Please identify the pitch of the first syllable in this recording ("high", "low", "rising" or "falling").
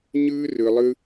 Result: high